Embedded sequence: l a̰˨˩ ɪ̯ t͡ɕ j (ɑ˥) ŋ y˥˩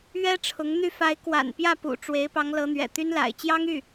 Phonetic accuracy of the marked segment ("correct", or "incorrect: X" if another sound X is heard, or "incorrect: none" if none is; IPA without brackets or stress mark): correct